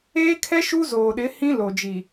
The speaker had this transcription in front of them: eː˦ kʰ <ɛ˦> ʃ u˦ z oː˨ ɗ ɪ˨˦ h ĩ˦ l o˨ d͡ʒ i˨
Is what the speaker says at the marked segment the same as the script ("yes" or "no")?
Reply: yes